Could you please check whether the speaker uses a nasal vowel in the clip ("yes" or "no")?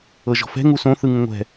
yes